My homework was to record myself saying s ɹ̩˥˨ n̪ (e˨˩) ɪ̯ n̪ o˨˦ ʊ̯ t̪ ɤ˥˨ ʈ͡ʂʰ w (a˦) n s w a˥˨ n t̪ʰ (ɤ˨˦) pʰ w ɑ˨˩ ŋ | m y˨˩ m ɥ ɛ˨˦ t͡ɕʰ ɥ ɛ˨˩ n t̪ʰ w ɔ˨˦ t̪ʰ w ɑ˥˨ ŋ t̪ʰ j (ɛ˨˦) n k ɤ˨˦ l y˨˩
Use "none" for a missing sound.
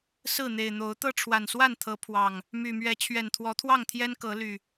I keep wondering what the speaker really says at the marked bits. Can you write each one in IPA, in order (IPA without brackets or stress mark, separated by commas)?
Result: e˨˩, a˨˩, ɤ˨˦, ɛ˦